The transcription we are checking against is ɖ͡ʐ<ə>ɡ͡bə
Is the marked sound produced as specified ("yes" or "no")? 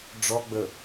no